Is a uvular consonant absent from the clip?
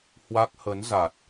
yes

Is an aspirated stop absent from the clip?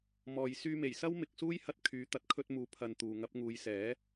no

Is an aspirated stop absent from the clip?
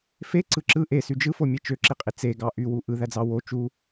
yes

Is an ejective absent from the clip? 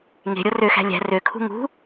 yes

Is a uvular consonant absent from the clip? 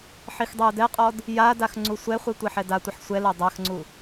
no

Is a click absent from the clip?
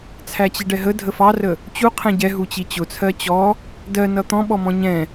yes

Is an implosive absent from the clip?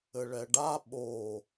no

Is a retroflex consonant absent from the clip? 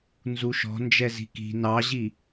yes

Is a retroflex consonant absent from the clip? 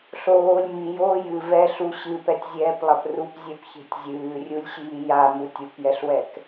yes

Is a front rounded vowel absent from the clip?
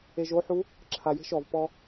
yes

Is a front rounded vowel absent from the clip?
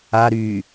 no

